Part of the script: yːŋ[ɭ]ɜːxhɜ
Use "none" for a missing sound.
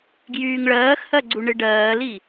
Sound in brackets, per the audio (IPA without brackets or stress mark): ɭ